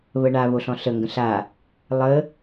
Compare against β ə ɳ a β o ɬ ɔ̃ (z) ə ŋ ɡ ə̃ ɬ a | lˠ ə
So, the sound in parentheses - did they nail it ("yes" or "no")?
no